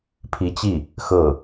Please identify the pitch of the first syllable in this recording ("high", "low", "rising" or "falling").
rising